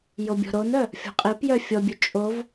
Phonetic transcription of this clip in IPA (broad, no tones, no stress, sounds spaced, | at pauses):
j o bʲ ɔ̤ ɾ o n œ | fʲ ɔ̤ qʼ i p j œ fʲ ɔ bʲ ø t͡ʃʼ o v